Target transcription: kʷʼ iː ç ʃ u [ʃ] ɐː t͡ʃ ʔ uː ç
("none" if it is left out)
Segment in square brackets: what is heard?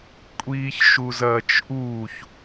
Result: z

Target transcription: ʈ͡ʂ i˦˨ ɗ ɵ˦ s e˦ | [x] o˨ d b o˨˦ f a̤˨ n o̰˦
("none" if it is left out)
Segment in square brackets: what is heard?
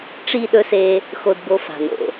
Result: x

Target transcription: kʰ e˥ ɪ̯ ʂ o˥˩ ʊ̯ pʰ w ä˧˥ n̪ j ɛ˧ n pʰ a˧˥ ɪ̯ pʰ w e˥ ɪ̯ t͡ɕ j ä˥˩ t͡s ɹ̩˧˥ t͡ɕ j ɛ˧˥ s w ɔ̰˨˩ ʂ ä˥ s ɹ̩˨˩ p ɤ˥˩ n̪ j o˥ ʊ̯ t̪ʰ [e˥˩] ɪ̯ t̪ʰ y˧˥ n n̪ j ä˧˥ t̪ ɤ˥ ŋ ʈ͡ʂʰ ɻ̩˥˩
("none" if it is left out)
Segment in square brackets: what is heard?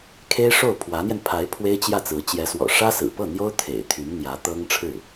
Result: ḛ˨˩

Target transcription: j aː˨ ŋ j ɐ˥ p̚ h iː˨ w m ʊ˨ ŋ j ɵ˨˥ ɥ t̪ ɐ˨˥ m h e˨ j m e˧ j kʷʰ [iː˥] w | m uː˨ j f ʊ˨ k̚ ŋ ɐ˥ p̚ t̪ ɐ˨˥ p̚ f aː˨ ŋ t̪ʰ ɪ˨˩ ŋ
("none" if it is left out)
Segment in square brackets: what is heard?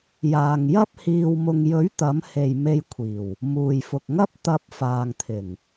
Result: iː˨˩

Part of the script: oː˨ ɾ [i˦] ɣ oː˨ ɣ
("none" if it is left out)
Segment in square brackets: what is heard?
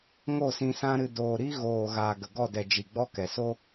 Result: i˦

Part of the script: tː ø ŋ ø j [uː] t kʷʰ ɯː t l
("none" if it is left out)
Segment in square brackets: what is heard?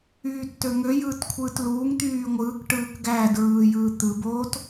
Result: ɯː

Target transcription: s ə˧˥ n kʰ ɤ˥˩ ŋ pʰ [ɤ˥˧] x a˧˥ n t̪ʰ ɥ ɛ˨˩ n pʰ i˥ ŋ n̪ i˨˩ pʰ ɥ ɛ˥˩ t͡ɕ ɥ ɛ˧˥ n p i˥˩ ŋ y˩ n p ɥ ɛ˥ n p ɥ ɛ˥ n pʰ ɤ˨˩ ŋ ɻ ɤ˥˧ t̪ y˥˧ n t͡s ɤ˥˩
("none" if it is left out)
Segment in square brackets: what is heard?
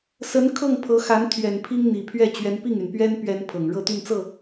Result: ɤ˧˥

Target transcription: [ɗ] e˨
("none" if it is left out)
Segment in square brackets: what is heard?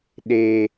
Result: ɗ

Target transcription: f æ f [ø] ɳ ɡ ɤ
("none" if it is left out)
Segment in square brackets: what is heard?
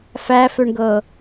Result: ø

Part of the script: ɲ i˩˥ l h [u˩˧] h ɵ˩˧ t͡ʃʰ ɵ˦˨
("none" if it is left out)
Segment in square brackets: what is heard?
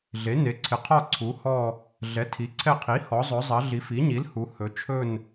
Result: u˩˧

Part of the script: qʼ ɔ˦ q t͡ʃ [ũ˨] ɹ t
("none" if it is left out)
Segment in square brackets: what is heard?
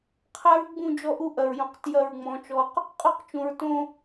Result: ũ˨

